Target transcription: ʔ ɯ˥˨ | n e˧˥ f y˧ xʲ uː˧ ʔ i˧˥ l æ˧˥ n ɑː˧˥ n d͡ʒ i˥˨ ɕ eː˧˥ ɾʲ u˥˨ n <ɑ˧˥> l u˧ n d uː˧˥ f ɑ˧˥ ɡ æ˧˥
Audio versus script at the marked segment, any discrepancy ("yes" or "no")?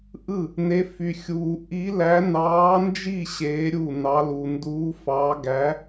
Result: no